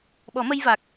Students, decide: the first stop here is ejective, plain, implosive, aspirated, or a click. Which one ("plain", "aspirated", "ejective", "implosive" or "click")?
implosive